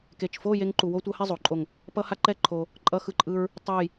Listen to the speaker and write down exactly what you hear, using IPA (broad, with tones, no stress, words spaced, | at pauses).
ke˧˩t͡ʃfo˥˧ je˥ŋǃu˧wo˥tʷʌ˥ hɛ˥˧zˤo˩˧ǃʼo˧˩ŋ | pʌ˥ha˥ ǃɛ˥ǃʰo˧ | ǃʼʌ˥xɯ˥˧ǃʼɯ˥ɹ | tˤe˥˧j